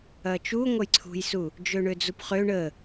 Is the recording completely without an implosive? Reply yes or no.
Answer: yes